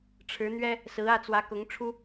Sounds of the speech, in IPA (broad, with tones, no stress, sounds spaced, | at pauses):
ʈ͡ʂʰ ɻ̩˧˥ n̪ ɥ ɛ˥ | s ɹ̩˧˥ ä˥˩ t͡s w ä˧˥ k ʊ˧˥ ŋ ʈ͡ʂʰ u˥